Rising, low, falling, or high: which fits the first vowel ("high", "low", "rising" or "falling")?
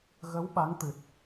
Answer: rising